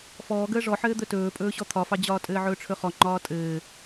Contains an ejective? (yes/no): yes